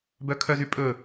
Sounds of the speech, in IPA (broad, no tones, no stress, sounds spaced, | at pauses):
b œ kʰ œ z y pʼ ɵ